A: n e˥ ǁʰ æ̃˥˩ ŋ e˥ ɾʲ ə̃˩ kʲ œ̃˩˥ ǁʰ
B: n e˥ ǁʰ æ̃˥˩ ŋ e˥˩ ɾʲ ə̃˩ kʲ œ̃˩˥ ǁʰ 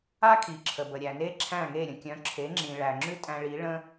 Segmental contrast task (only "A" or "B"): B